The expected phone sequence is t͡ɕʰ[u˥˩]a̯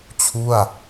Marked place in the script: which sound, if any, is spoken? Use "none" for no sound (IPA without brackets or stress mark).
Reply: u˥˩